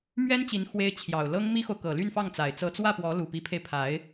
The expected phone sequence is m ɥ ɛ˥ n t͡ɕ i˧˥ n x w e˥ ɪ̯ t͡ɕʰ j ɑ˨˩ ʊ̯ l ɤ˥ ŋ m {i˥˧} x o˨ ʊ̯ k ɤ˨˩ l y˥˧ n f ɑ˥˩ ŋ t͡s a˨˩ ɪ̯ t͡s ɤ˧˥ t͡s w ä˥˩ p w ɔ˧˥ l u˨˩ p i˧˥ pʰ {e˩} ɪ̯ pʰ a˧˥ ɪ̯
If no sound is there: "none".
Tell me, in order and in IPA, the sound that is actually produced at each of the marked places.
i˥, e˧

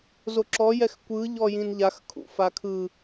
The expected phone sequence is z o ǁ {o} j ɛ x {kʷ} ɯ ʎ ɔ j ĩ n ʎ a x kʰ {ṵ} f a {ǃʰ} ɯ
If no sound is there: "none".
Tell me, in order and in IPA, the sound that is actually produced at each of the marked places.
ɔ, kʷ, ṵ, kʰ

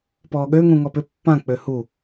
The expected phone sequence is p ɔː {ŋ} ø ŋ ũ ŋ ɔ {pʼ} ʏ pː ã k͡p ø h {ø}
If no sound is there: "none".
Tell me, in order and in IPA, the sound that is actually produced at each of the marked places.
ɠ, p, u

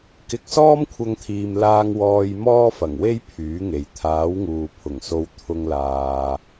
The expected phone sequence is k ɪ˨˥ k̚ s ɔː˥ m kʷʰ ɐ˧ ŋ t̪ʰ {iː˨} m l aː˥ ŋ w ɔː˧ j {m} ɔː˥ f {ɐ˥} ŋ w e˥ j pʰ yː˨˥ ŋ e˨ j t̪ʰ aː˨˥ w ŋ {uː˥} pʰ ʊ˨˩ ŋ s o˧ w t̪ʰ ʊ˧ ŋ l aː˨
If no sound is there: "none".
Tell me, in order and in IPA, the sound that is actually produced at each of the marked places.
iː˨, m, ɐ˨˩, uː˨

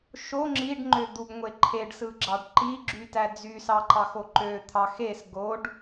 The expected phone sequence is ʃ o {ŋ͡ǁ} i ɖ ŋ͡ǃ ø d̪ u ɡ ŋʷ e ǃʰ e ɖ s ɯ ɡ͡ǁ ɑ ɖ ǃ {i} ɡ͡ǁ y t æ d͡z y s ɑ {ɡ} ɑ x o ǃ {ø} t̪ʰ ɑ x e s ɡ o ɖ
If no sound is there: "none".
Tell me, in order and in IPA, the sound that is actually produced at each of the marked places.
ŋ͡ǁ, i, ǃ, ø

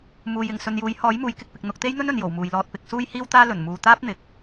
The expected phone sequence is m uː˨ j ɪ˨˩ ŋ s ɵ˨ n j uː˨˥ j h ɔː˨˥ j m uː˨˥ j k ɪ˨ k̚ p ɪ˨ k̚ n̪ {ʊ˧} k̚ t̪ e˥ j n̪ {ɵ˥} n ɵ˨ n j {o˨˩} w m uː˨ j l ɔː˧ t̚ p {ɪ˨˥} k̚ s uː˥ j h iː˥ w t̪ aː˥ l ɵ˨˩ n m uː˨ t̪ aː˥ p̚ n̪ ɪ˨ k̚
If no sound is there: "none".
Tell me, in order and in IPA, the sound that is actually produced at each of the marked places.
ʊ˧, ɵ˥, o˨˩, ɪ˧

